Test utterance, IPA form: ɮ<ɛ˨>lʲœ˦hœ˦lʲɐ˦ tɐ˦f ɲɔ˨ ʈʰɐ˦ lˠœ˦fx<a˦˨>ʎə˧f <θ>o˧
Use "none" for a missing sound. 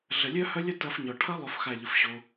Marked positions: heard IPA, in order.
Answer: ə˨, a˦˨, ɕ

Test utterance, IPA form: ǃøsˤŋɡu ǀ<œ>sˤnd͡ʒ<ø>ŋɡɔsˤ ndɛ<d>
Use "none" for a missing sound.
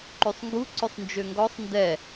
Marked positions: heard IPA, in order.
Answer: œ, ø, none

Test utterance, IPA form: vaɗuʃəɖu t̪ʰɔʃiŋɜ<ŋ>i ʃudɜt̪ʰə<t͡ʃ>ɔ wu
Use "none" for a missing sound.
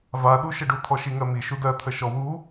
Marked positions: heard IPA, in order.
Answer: m, ʃ

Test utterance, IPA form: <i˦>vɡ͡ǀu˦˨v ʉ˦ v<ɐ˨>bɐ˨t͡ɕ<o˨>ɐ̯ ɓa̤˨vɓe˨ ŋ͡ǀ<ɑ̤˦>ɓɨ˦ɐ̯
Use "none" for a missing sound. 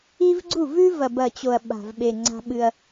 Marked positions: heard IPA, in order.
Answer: i˦, ɐ˨, o˨, a̤˦

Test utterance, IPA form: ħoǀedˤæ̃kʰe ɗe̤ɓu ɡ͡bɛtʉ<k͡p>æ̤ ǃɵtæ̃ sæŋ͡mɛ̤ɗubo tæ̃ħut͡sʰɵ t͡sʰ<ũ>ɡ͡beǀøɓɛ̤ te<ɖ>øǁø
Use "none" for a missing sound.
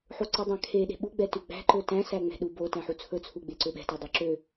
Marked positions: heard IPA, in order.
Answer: ɡ͡b, u, dˤ

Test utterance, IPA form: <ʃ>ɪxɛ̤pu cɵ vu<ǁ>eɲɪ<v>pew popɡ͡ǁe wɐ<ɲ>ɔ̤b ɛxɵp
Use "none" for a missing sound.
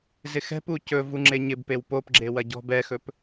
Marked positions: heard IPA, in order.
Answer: z, ŋ͡ǁ, b, ɟ

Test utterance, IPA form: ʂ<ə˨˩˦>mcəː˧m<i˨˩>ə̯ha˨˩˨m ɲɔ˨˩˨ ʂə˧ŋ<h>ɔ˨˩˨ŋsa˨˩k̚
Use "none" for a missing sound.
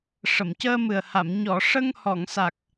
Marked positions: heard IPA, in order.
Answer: ə˨˩˨, ɨ˨˩, h

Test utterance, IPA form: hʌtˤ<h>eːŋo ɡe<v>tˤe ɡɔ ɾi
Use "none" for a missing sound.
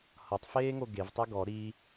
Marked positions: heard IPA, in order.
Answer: f, v

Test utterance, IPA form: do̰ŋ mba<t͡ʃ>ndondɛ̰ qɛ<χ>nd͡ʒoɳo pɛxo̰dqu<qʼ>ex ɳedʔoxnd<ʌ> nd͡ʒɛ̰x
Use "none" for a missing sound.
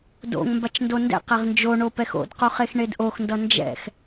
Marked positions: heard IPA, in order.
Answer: t͡ʃ, ʁ, χ, ʌ

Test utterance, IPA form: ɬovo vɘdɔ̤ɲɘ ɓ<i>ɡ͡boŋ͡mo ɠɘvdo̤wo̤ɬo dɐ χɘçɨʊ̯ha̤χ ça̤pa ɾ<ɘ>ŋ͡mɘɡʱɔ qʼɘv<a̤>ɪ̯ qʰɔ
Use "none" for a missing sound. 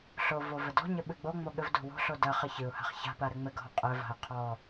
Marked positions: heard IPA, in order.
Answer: ɨ, ɘ, a̤

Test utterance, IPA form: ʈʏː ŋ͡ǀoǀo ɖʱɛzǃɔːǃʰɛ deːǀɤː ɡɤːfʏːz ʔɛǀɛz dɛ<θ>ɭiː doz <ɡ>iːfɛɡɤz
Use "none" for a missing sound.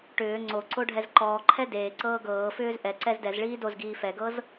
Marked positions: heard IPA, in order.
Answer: z, ɡ

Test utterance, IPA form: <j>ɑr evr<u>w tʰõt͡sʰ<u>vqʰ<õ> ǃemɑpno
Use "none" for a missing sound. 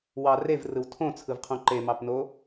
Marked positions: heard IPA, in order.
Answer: w, ɯ, ɯ, õ

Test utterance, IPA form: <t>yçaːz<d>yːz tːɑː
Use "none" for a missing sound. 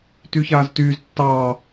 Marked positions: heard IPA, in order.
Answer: t, t

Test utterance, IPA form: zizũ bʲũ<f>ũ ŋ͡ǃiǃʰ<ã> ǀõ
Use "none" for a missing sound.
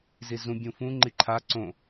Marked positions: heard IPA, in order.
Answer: f, a

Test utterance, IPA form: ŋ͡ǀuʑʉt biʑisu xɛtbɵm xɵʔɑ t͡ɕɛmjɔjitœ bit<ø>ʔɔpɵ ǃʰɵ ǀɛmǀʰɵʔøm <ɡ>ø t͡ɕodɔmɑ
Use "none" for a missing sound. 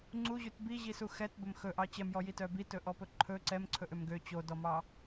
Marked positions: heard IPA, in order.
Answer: ɵ, ɡ

